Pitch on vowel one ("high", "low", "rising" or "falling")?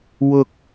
high